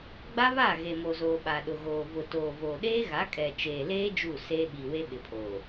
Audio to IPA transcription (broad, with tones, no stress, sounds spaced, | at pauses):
ɡ͡b a˦ β a˦˨ ɣ e˨ m o˨ z oː˨ ɓ a˨ ɗ ʊ˨ ɣ oː˨ v ʊ˨ t oː˨ v oː˨ ɗ eː˦ ɣ a˨˦ kʼ ɛ˨ t͡ʃ eː˨ l eː˦ d͡ʒ u˦˨ s eː˦ ɓ i˨ w e˦ ɓ ɪ˨ pʰ oː˨